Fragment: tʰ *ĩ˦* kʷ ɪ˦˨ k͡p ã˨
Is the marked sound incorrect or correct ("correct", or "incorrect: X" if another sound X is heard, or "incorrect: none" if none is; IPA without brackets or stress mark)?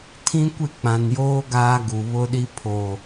correct